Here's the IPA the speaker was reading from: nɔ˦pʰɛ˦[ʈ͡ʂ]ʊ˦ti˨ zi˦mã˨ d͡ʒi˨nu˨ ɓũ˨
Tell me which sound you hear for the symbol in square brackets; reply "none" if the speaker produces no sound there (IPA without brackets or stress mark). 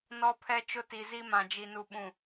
t͡ʃ